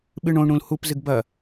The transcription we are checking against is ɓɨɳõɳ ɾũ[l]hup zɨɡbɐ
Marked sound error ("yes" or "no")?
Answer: no